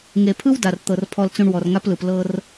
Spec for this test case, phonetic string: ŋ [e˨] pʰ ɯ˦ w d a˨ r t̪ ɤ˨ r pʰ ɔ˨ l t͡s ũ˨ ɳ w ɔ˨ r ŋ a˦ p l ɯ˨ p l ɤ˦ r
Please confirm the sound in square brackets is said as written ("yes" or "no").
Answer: yes